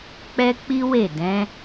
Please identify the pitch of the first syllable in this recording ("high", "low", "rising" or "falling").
high